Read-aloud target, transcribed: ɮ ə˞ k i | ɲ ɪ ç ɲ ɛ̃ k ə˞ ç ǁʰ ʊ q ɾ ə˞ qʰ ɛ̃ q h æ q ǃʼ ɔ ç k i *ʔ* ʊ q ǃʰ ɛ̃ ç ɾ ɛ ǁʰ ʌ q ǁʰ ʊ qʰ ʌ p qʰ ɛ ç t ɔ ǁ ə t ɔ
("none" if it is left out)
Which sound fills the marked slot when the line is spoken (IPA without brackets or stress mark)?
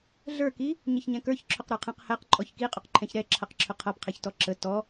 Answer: qʼ